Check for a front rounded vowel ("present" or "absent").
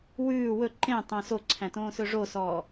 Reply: present